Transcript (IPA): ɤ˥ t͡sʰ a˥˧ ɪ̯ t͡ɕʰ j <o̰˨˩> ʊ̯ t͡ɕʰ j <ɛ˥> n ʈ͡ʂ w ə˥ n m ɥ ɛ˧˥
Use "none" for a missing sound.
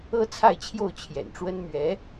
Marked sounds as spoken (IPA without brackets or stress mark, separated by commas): o˥˩, ɛ̰˨˩